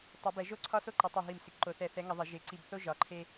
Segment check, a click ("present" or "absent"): present